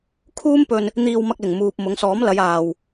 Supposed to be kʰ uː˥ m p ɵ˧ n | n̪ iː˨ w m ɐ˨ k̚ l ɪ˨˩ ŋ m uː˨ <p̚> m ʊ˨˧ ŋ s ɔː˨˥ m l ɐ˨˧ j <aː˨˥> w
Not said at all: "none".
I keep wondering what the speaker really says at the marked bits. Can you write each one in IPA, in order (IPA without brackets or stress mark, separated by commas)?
p̚, aː˨